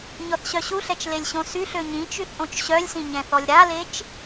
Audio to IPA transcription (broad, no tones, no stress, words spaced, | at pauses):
ɲɔθɕœɕuɬɛt͡ʃ lelʲɕõsyɬø ɲĩ t͡ʃyθʔõt͡ʃɕœlʲsĩ ɲɛ̃θɔlʲɾalet͡ʃ